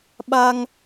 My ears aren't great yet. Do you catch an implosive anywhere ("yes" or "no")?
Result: yes